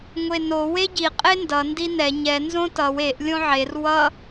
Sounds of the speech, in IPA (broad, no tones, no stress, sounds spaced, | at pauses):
ŋʷ e n o w e ɟ i qʼ e n d ʌ n d i n ɛ ɲ ɛ n z õ t ʌ w e ʔ lʲ õ ʕ e r w ʌ